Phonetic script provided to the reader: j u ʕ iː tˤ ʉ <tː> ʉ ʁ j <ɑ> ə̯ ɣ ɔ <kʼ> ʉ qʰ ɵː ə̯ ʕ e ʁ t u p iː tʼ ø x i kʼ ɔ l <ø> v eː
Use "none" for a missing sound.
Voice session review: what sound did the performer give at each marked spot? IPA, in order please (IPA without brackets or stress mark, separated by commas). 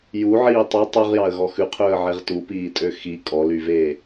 tˤ, ɑ, x, y